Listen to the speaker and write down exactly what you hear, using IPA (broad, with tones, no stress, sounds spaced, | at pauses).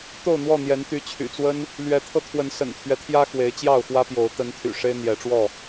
t̪ o˥˨ ʊ̯ n̪ w ɔ˥˨ n̪ j ɛ˨˦ n t̪ y˨˦ t͡ɕʰ y̰˨˩ t͡s w ə˦ n | l ɥ ɛ˨˦ t̪ʰ ɤ˧ t̪ʰ w ə˨˦ n s ə̰˨˩ n t̪ʰ ɥ ɛ˦ t̪ʰ j ä˦ x w e˨˦ ɪ̯ t͡ɕ j ɑ˥˨ ʊ̯ x w ä˦ p j o˨˦ ʊ̯ t̪ ə˨˦ n t̪ʰ y̰˨˩ ʂ e˦ ɪ̯ n̪ j ɛ˨˦ ʈ͡ʂ w ɔ˥˨